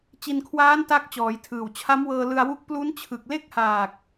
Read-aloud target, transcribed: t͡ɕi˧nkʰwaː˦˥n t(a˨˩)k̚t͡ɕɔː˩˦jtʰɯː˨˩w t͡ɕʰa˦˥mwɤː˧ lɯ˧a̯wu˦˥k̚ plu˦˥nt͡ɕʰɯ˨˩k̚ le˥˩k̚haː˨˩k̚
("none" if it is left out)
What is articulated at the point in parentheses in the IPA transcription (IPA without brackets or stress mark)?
a˦˥